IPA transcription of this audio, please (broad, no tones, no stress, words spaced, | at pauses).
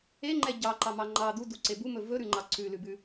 eŋ͡ǃɛ ɟɑǃɑmɑ ŋ͡ǃɑ d̪uduǀe bumɵ vɵɾʉŋ͡ǃɑ ǀʉlʉbʉ